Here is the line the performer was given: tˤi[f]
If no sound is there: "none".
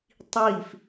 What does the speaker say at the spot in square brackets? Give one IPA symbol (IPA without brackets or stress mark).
f